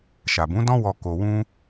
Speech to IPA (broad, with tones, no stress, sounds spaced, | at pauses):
ʃ a˨ b ũ˨˦ d ɔ̃˦ w ɔ˧ k o˧ w ũ˦